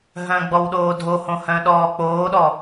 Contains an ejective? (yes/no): no